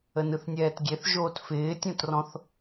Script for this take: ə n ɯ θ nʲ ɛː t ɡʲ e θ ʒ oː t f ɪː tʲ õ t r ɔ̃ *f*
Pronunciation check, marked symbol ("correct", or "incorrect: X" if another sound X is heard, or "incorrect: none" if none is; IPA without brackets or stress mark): incorrect: θ